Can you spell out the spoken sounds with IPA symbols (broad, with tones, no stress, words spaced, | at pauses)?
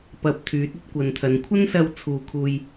pɐ˧p̚ t̪ʰyː˨˥t̚ɵ˥t̚kʷɐ˨nt̪ʰɐ˨˧n kʷʰɐ˥nsɐ˧w t͡sʰuː˧kʰuː˧j